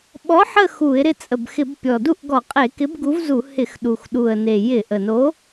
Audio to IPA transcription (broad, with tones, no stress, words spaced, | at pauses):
ɓɔ˨˥ħə˦˨ xu˧˩˧ɪ̯ ɾɪ˦˨t͡sʼə˨˩bxɪ˧˩˧bpʲɔ˨˩ du˦˨ʔɡɔ˧˩˧ qʼe˧˩˧kɪ˨˥bɡu˨˥vzu˧˩˧ hɪ˧˩˧xɗu˨˩xɗu˨˩ə̯ne˨˩ jɪ˧˩˧ ʔə˨˩no˨˥